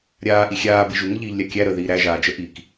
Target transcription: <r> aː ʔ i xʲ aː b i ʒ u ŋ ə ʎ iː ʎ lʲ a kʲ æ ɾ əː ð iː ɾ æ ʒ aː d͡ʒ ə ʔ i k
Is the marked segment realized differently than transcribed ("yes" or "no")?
yes